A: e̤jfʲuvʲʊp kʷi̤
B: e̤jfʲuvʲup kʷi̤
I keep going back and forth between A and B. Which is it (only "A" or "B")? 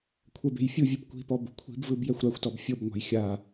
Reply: B